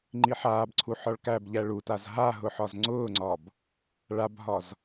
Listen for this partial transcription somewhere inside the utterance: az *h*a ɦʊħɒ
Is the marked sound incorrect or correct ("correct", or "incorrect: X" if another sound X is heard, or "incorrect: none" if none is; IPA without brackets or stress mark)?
incorrect: ɦ